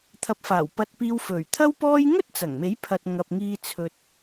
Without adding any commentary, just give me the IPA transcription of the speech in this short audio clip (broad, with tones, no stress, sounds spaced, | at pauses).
t̪ʰ ɐ˨˥ p̚ f aː˨˩ w p ɐ˧ t̚ p iː˧ w f ɵ˨˩ ɥ t̪ʰ ɐ˥ w p ɔː˥ j ŋ ɵ˥ t̚ t͡s ɐ˨˩ ŋ m e˨˥ j pʰ ɐ˧ t̚ ŋ ɐ˨ p̚ ŋ iː˧ t͡sʰ ɵ˧ t̚